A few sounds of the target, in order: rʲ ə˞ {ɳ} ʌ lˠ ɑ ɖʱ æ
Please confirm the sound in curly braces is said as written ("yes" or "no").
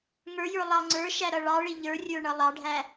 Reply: yes